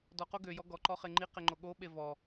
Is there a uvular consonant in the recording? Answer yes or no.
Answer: yes